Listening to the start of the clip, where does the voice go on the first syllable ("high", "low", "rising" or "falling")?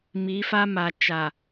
rising